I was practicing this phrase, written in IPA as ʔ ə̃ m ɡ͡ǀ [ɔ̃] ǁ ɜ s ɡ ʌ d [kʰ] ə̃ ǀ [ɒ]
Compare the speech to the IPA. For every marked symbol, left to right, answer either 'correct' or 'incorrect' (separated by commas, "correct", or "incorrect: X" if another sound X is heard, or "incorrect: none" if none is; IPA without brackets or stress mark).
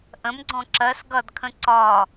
correct, correct, correct